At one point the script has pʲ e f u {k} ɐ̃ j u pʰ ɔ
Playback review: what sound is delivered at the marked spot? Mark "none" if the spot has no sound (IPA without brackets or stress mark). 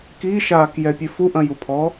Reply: ʔ